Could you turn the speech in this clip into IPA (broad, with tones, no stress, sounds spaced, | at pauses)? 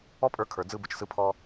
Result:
ɔ˦ pʼ ə˞˧ kʰ ə˞˨ d͡z ɯ˧ b ɯ˨ t͡ʃ s ɯ˧ pʰ ɔ˧